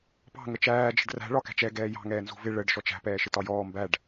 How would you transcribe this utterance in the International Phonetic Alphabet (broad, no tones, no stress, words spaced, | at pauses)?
pɑ̤ ŋət͡ʃæː d͡ʒə̤ɖræ̤ ɭɒkæ̤t͡ʃɛ ɡɛːjɑ̤ ŋɛːnzṳvɪ ɭəɖ ʃɔt͡ʃæ̤ pɛːʃɪtɒjɔː mbæɖ